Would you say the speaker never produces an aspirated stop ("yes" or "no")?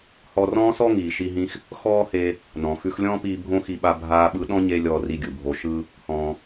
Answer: yes